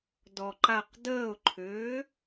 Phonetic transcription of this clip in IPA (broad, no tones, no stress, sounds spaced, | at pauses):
d ɔ ǃ a q d əː ʊ̯ ǃʰ ʏː